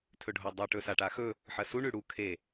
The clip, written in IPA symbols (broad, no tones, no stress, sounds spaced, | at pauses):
tʰ ɵ ɖʱ o dˤ ʉ ʈ ɵ s a ʈ a x ɵ | ħ ɐ s u ɳ ʉ ɽ u kʰ e